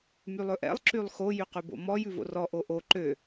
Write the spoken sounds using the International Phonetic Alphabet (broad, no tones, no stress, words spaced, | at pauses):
mylˠɵʔɛ̰lˠ ǁylˠxo jyqʉbo̰mɔ jʉvo̰rɔ ʔoʔo ǃø